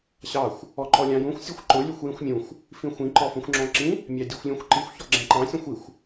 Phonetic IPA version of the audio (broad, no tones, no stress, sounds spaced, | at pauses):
ɕ ɑ xʷ | ɔ ǃ ɔ lʲ ɑ̃ j ũ xʷ sʲ æ xʷ ǃ ʊ lʲ u xʷ j ĩ xʷ mʲ ũ xʷ | f ĩ xʷ ĩ ǃ ɔ f ũ xʷ ŋ͡ǁ ɔ̃ ǁ ĩ | mʲ ɑ dʲ u xʷ lʲ ũ xʷ ǃ i xʷ ç ɔ ɡ͡ǁ æ̃ ǃ ɑ̃ sʲ ũ xʷ i xʷ